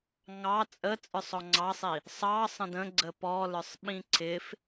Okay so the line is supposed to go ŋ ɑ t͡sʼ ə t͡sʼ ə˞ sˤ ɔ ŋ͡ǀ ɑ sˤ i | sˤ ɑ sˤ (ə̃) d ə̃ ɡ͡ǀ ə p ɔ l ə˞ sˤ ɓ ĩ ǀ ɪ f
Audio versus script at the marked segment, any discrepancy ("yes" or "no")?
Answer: no